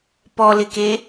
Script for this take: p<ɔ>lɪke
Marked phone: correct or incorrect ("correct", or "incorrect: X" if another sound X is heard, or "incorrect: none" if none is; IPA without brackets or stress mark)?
correct